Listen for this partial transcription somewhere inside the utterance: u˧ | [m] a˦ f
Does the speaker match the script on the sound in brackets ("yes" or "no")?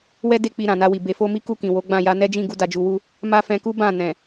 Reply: yes